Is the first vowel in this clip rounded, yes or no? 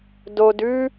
yes